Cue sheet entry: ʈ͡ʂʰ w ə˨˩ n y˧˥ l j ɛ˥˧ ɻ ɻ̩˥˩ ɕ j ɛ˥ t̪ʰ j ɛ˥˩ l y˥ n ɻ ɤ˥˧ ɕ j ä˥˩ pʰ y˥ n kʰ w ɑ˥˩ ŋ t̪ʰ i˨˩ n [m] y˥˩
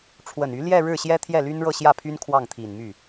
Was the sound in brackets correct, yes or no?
yes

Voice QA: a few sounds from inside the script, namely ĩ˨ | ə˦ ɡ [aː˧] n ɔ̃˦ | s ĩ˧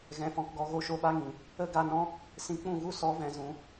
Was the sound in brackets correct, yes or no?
no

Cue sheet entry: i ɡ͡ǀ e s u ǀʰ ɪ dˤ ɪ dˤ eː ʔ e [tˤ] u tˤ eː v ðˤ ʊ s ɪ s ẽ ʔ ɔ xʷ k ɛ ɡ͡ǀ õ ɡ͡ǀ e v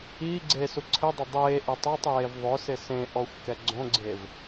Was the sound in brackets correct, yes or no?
yes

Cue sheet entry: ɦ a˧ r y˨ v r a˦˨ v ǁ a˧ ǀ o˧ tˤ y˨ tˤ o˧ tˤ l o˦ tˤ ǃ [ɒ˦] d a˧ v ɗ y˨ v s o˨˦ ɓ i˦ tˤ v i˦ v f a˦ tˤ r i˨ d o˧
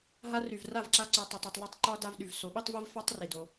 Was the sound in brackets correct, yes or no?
yes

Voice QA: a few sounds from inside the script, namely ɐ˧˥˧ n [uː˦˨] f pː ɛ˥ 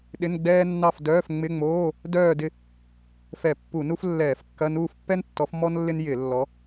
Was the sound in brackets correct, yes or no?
yes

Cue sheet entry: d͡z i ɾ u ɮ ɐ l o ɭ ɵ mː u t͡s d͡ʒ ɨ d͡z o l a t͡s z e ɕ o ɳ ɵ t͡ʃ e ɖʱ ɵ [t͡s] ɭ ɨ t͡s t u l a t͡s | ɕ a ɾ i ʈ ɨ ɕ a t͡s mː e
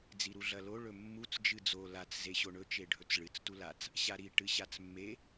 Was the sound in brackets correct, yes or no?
yes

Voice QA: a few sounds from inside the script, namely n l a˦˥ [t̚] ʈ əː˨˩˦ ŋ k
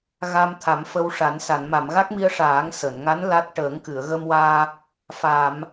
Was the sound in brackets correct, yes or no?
yes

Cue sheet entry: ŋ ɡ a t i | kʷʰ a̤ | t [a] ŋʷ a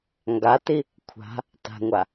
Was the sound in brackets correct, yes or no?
no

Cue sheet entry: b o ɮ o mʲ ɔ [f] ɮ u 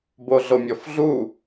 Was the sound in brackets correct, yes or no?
yes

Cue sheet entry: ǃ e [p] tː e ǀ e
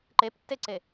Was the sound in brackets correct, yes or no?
yes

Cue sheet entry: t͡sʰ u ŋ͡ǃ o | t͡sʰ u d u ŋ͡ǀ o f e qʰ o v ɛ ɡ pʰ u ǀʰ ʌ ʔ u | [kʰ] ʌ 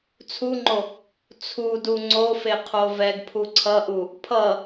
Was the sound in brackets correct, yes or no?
no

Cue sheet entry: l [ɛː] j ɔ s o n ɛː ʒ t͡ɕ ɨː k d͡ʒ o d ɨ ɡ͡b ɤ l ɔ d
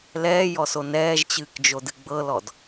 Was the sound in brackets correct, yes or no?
yes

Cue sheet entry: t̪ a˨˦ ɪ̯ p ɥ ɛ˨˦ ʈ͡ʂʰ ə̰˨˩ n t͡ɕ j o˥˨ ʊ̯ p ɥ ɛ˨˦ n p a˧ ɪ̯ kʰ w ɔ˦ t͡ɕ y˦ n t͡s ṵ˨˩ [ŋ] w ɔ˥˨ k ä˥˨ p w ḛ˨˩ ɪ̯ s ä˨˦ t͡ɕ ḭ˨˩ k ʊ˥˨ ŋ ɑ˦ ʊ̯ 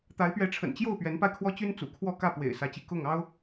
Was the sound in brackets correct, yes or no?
no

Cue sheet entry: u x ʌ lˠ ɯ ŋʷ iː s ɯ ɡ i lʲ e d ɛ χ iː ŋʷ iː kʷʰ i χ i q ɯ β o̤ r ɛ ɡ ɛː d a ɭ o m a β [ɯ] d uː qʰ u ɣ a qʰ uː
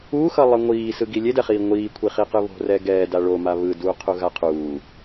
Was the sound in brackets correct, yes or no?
yes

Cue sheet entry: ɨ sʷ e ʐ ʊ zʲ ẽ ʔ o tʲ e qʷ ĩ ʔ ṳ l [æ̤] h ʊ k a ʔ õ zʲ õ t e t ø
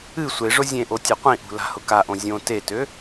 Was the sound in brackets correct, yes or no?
no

